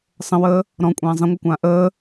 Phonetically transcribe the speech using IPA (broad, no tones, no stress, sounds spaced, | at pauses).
sˤ ə̃ w əː | ɾ ɔ̃ kʷʼ ãː zˤ ə̃ ŋʷ ʌ kʷ ãː ʔ əː